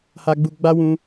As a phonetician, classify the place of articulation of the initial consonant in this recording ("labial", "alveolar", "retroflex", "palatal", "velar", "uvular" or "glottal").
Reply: glottal